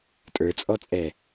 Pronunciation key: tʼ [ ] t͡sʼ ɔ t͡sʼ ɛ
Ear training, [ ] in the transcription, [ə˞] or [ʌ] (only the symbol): ə˞